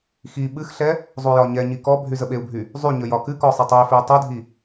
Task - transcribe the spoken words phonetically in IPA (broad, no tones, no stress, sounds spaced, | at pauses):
x i ɓ ɨ x ɬ ɛ | zˤ u j ɒ ɲ ɛ ɲ i k ɔ bʱ y z ə ɓ e u̯ bʱ y | zˤ y ɲ ə j ɒ k ɨ k ɔ sˤ ɨ tˤ u i̯ f i u̯ tˤ u dʱ i